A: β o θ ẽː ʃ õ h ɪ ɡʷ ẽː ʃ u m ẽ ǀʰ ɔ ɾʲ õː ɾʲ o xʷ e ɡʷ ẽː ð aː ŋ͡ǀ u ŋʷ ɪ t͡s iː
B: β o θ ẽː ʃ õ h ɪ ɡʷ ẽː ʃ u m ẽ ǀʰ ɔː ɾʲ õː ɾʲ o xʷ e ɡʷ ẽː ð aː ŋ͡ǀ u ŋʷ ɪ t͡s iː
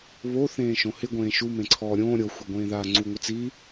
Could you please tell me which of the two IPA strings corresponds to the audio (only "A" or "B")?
B